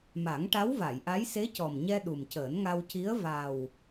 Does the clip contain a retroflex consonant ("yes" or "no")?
yes